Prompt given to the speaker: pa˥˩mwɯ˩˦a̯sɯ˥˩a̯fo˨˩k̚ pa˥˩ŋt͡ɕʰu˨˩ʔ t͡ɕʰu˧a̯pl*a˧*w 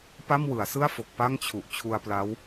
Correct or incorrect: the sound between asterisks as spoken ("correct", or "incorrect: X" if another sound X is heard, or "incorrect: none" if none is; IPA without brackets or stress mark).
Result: incorrect: a˦˥